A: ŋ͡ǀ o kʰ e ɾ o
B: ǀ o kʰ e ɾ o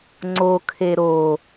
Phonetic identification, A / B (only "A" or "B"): A